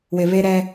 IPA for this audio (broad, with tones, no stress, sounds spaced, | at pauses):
w ɪ˨ β e˦ ɾ ɛ˦